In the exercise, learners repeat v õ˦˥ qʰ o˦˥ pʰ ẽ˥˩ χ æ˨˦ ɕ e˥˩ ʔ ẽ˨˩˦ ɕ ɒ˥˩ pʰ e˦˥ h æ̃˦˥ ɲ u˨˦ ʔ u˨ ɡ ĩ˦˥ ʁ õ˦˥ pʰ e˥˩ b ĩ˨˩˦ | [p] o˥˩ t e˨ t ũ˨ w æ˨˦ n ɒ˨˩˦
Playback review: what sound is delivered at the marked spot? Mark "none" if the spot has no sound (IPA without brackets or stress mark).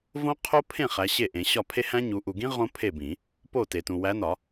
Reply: p